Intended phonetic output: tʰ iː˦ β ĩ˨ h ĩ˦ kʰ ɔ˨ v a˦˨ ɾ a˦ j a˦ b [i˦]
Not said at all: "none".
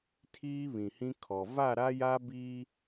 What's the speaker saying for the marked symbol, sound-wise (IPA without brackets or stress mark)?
i˦